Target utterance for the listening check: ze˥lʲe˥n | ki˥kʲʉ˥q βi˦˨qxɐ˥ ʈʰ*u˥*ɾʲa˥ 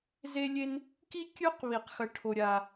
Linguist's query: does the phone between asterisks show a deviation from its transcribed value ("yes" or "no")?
yes